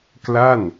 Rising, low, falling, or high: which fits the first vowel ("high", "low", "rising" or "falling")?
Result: falling